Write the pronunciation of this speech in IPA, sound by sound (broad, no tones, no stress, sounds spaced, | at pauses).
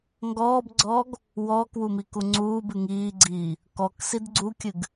ŋ ɡ ɔː b ɡ͡ǀ ɔː ɡ | w ɔː k w u m i k u ŋ͡ǀ uː b ɨ ŋ iː ɡ͡ǀ iː | k ɔ k s i d ɡ͡ǀ u kʲ ɨ ɡ